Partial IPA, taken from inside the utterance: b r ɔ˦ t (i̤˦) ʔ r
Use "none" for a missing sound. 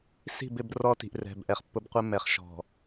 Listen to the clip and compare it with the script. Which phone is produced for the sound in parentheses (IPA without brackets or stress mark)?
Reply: i̤˨